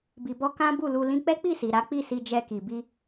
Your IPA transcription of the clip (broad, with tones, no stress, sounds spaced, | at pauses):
b i˧ b ɔ˦ k ã˦ b u˦˨ l u˧ l ĩ˧ k͡p ɛ˦ k͡p i˦˨ s i˨ ɾ a˨˦ k͡p i˦˨ s i˧ d͡ʒ ɛ˧ k i˨ b i˧